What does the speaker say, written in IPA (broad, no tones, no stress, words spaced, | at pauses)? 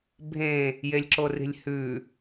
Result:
bʱẽ | jelʲǁori̤lʲhʉ